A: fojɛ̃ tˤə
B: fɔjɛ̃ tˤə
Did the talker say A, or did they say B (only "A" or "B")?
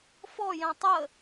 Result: B